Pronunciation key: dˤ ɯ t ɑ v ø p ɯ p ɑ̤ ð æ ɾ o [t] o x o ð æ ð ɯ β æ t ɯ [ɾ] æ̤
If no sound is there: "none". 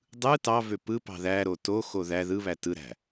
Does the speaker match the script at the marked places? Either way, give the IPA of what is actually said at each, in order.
t, ɾ

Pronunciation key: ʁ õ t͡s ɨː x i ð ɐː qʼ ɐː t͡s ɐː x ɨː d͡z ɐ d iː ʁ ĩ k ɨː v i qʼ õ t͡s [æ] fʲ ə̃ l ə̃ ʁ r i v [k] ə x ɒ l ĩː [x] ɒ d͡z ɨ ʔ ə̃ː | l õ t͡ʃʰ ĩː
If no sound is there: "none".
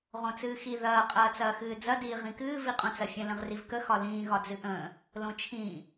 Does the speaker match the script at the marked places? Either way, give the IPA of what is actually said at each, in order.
ɐ, k, ɣ

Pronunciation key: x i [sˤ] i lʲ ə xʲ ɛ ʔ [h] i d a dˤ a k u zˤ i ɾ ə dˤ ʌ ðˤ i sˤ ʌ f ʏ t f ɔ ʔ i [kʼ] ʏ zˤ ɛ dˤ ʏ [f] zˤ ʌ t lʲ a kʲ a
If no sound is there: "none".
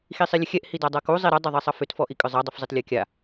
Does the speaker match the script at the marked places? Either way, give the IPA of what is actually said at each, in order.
sˤ, h, kʼ, f

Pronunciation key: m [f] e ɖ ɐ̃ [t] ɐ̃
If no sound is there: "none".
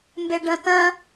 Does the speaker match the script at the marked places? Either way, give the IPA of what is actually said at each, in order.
b, t

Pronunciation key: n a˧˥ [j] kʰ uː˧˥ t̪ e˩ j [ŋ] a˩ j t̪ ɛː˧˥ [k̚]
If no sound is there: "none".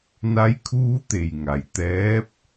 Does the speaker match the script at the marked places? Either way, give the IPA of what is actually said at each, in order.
j, ŋ, p̚

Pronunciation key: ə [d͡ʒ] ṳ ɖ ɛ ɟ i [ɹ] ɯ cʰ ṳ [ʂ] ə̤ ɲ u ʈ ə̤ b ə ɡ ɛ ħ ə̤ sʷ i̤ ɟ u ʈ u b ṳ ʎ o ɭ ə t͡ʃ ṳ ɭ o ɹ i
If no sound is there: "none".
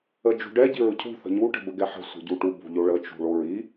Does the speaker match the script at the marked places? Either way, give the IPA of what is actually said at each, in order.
d͡ʒ, ɹ, θ

